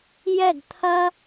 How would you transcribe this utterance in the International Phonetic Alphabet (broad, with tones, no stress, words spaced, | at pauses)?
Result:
jɛ˥˨ɡt̪ʰɐ˥